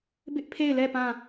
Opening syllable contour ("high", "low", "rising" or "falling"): high